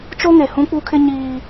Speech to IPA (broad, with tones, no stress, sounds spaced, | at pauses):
t͡ʃ o˦ ŋ e˨ h ũ˦ k͡p u˦ kʰ ɪ˦ ɲ iː˦